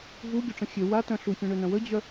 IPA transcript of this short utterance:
vuɡʲoʈ͡ʂə̃ xʲø watœ̃ ɬufʲœ̃ɳønœ̃ wəd͡ʑœ

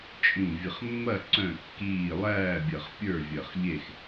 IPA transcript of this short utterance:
t͡ʃʼĩ˧˩vʲə˧˩χmːɐ˥˨ ǀœ̃˥˨kːiː˥˨ lˠæː˥˨bʲɐ˧˩χ pʲə˞˥˨ vʲɐ˧˩χʎe˥˨x

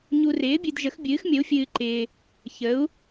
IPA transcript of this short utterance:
ɲu˨rɪː˩˥bʲɨ˨d ʒə˩˥xbʲɨː˩˥xmʲə˩˥u̯fʲɨː˨ ǃɪː˨ | çə˩˥u̯

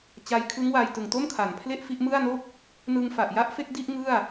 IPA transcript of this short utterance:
t͡ɕa˧jkʰɯ˦˥ŋwa˧j tɯ˨˩ŋto˥˩mkʰa˩˦npʰle˥˩ʔ fi˥˩ʔ mɯ˥˩a̯no˥˩k̚ | nɯ˧ŋfa˨˩ʔja˦˥ʔ fe˦˥k̚di˥˩ʔ ŋɯ˥˩a̯

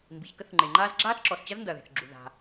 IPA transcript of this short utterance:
mbi˩çkə˥θŋ͡ǃe˩ŋ͡ǃaː˥z ɡ͡ǁaː˥θǁɔ˩st͡ɕɐ˥z ndɐ˩ðe̤˩θɡ͡ǁu˩ ða̤˩

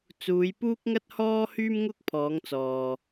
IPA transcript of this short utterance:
t͡suː˨˧jpuː˥k̚ŋɐ˥t̚hɔː˥ hyː˥mŋʊ˥k̚ pʰɔː˨˧ŋt͡sɔː˨

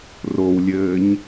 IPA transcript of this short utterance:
rowlʲɘːɲ

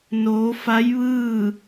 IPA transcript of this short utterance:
noː˩˧fa˧˥jʋɯː˥˨

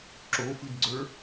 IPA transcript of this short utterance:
ǁofɨdɡ͡ǀə˞

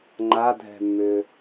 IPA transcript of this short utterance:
ŋ͡ǃadʱɛ̤mːʏ

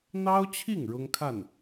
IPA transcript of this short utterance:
n̪ɑ˥ʊ̯t͡ɕʰi˥˩ŋ ɻʊ˥ŋkʰa˥˩n

